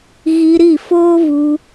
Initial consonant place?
velar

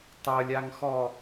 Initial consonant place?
alveolar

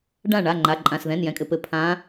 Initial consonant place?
retroflex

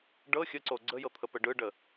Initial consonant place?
retroflex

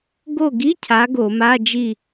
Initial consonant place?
velar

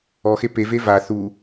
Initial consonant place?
velar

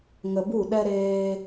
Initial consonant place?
velar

